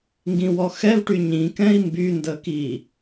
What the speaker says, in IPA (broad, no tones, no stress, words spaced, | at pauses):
ŋɡĩwɔxɛvʈy ɲĩkɛ̃i̯ mbyndə ki